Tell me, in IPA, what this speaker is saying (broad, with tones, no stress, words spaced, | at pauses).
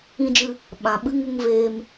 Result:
ĩ˧d͡ʒɨ˧ | ɓã˨ ɓɨ˧ ŋu˧ŋveː˧m